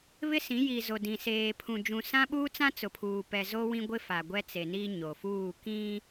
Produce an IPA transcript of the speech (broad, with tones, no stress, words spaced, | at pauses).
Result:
βɪ˦sĩ˨˦ji˨zo˨ dĩ˨ seː˨pʰũ˨ d͡ʒũ˨sã˦ɓuː˦t͡sã˦ t͡sʊ˨pʰuː˨pɛ˨ zo˦wĩ˦ɡʷɪ˦ fa˨ɡʷɛ˦t͡se˨ni˦ ɲo˨fuː˦˨ kĩ˦